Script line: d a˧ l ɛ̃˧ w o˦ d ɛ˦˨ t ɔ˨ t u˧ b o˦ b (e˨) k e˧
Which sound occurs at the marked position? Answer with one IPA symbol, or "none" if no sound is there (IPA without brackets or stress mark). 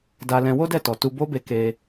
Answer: e˧